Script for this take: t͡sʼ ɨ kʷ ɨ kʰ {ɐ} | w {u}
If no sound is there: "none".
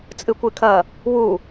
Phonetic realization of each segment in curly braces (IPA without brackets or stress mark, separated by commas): ɐ, u